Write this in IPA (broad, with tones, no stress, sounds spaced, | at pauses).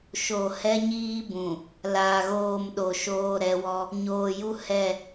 ʃ o˨ h ɛ˦ ɲ iː˦ b ũ˨ | l aː˨ ɣ oː˦˨ m ɗ o˨ ʃ oː˦ ɾ ɛ˨˦ w ɔ˦ | ɲ oː˨ j u˦ h ɛ˦˨